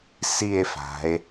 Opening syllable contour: falling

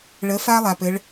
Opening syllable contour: rising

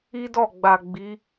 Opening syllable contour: high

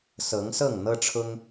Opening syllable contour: rising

